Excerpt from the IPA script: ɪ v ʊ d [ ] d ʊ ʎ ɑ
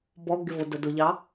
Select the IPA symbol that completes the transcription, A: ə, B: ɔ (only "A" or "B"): A